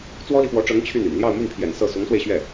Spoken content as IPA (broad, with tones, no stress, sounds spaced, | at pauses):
t͡s w ɔ˥ l i˨ f w ɔ˧˥ ʈ͡ʂ ɤ˧˥ ŋ t͡ɕʰ y˥˩ n y̰˨˩ n l j ɑ˥˧ ʊ̯ m y˥˩ n pʰ j ɛ̰˨˩ n s ɤ˥˩ s ʊ˧˥ ŋ s w e˧ ɪ̯ ɕ ɥ ɛ˥˩